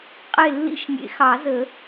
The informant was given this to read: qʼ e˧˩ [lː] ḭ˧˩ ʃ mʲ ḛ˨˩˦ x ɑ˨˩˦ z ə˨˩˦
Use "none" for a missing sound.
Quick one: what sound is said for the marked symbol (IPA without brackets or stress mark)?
lː